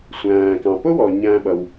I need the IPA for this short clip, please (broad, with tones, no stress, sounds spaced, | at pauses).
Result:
sʷ æ̃ː˩ k ɑ̃˩ p ʊ˥ w ɔ˩ ɲ æ̃ː˧ ɓ ʌ˩ w